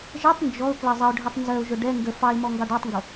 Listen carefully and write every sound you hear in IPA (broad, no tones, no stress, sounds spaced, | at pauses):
ʒ ɛ tˤ n d͡ʒ ɔ ʊ̯ k l ɜ zˤ ə ʊ̯ ɖʱ ɛ tˤ n z ɜ ʊ̯ ʒ ʊ ɖ ɛ ŋ ɡ ə f ɑ ɪ̯ m ɔ ŋ ɡ ɑ ɖ ɑ tˤ ŋ ɡ ʊ